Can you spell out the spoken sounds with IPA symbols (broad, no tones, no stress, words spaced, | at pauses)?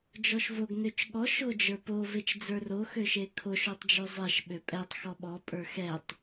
d͡ʒɔʃvoɡ nøt͡ʃɠɔ ʃod͡ʒə˞po vet͡ʃd͡zə˞ro xøʃekʰo ʃotˤd͡ʒøzˤɛʃ ɓøpʼɛtˤ xɔɓɔ pʼə˞xɛtˤ